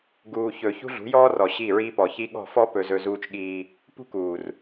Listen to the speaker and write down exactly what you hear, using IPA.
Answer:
ɡ uː˨ ç ɵ˨ ç ṳ˦ ɮ ṳ˨˦ j ɔː˦ r ɔ˨ ɕ i˦˨ ɹ iː˦ p ɔ˨ ç i˦ ɠ ɔ̤˦˨ f ɔ˦ p ɵ˨ z ɵ˨ z uː˦ t͡ʃ ɠ iː˦ | p ṳ˦ k uː˨ r

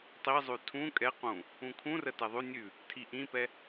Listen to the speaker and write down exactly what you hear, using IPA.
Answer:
tˤ i zˤ ʉ tʰ ũ kʼ ɛ q ũ | ũ kʰ ũ r ə t ɛ ðˤ ʉ nʲ ʉ | tʰ i ʔ ĩ p ɛ

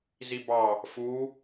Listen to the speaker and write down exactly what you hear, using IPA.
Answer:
z i b ɑ | f u

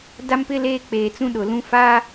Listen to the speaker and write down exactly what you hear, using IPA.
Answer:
d a˦ m p ɪ˦ l eː˦ k͡p eː˨ t͡s ũ˦ ɗ ʊ˨ l ũ˦ f a˦

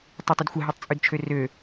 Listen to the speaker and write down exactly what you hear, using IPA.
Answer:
tˤ ʉ tˤ ʊ d xʷ ə ɦ ʉ tˤ t͡sʼ ʉ d t͡ʃʰ ø r ø

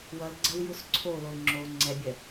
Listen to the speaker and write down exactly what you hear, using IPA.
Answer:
w ʌ l ɡ͡ǀ ɜ w j u s ǀʰ o l o l ŋ͡ǁ o ŋ͡ǀ ɛ bʲ ɜ

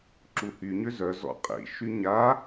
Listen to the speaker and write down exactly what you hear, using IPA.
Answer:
ǁ u h y ɲ ø z œ z ɔ̰ qʼ ḭ ʃ y ɲ a

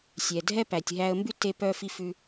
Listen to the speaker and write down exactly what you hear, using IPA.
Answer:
sʲ ɛ˩ dʱ ɛ˥ p æ˩ tʲ ɦ æ˧ ə̯ m b ʉ˥ t e˧ p œ˧ f i˧ f ʉ˧

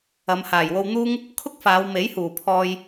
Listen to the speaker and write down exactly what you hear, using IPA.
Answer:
ɐ˨˧ m h aː˨˩ j w o˧ w n̪ uː˥ ŋ | kʰ ʊ˥ k̚ f aː˨˧ w m e˨˥ j h uː˨˩ pʰ ɔː˧ j

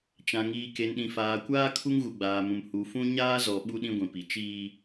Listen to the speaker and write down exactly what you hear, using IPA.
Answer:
t͡ʃ ã˨ ŋ iː˨ k e˨ n ɗ ĩ˨ f aː˨ kʷ aː˦ kʰ u˦ ŋ ɣ u˨ ɡ͡b aː˨ m ũ˨ m h u˨ f ũ˦ ɲ aː˦ z ɔ˨ ɓ u˦ ɗ ĩ˦ ɡʷ ĩ˨ p i˨˦ t͡ʃ iː˦

